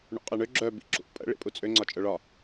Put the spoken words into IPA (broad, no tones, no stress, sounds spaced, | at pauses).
ɳ ṵ qʼ e ɳ ø ɡ͡ǁ œ b ḭ ǁ ṵ pʼ ə̰ ɭ ḭ pʼ u t͡sʼ ø ŋ͡ǀ ɒ t͡ʃʼ œ ɭ ɒ